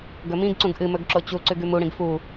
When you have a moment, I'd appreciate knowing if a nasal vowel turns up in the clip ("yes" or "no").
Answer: yes